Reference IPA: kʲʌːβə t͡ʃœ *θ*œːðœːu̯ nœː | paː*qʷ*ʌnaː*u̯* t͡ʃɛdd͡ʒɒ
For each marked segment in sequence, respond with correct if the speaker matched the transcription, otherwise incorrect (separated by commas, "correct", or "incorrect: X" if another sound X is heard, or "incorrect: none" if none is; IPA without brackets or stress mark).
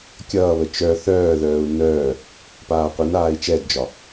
correct, correct, incorrect: i̯